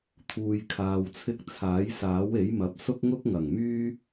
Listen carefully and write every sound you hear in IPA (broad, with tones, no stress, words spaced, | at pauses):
t̪ʰuː˧jkʰaː˧wt͡sʰɪ˥k̚ t͡sʰaː˨˥jsaː˨˥we˨˥jmɐ˨p̚ sʊ˥k̚ŋʊ˥k̚ŋɐ˨˩ŋmyː˥